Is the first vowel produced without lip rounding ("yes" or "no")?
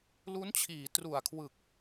no